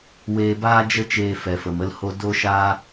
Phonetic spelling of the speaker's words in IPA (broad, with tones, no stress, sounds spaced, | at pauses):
w eː˧ b aː˦ d͡ʒ ə˦ t͡ʃ eː˧ f ɛ˨ f ə˨ m ə˧ l h o˦ d o˦ ʃ aː˦